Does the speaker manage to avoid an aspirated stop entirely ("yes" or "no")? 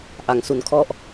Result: no